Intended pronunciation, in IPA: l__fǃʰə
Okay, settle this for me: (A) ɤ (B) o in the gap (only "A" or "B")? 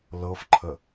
A